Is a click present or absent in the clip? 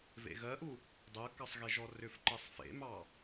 present